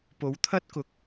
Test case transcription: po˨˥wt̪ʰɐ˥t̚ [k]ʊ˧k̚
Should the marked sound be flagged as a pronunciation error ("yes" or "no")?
no